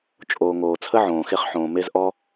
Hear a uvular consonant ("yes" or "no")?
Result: yes